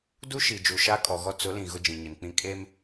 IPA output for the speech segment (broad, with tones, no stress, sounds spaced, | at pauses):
d u˦ ʃ i˨ d͡ʒ u˨ ʃ a˦ kʼ ɔ˨ ɣ ɔ˦ t͡s ʊ˨˦ l ĩ˨ ɣ ʊ˦ d͡ʒ ĩ˨ ɲ ɪ˨ n k͡p ĩ˦ kʼ e˦ m